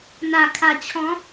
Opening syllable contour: low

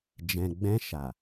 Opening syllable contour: low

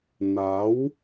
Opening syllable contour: rising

